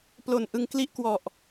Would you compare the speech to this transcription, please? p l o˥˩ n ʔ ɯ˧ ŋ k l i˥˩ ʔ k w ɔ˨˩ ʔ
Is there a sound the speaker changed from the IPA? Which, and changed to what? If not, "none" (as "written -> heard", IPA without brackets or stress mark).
o˥˩ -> o˨˩